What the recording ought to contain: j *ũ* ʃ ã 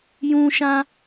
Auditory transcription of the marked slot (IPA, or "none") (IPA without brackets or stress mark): ũ